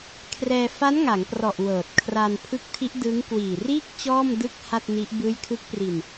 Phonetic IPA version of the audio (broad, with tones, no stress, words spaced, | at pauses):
kʰrɛː˧ fa˦˥nŋa˩˦ŋprɔ˨˩ʔ wɤː˨˩t̚kʰra˧n pʰɯ˦˥k̚tʰi˦˥ʔdɯː˦˥ŋ kwiː˨˩riː˥˩k̚ t͡ɕɔː˥˩mdɯ˥˩k̚ ha˥˩t̚ni˦˥ʔ bɯː˦˥jkʰɯ˦˥k̚pri˧n